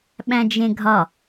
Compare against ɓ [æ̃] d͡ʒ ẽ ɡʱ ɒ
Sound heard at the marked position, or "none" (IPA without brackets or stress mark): æ̃